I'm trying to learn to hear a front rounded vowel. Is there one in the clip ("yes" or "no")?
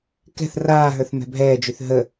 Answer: yes